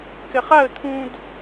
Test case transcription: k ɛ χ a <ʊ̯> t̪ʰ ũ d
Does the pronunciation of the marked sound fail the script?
yes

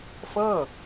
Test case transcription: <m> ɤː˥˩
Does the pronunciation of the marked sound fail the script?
yes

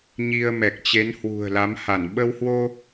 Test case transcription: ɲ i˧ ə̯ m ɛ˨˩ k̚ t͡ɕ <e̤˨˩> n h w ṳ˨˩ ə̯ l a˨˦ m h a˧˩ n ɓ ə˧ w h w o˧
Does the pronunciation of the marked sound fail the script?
yes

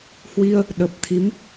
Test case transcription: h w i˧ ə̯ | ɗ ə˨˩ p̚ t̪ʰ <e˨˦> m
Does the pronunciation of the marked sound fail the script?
yes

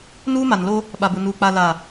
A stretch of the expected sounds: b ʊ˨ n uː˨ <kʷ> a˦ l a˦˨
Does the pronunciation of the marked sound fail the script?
yes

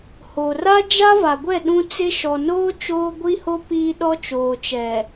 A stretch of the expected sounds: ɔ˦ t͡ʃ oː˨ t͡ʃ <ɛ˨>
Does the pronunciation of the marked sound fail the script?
no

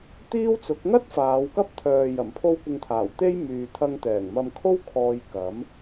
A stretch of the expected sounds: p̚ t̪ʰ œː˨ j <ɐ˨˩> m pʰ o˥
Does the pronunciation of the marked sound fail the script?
no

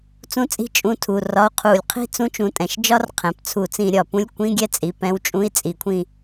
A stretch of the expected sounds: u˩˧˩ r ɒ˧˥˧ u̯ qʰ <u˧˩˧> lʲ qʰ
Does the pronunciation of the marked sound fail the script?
no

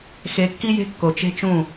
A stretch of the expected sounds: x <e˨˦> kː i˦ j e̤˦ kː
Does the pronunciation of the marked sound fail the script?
no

